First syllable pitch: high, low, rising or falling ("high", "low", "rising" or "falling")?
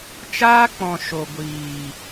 high